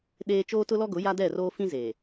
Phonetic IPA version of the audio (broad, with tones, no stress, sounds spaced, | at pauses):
ɗ eː˦ t͡ʃ oː˦ t ʊ˦ l ɔ˦ ɡ ʊ˨˦ j a˦ d ɛ˦˨ r oː˦ f ĩ˦ z eː˨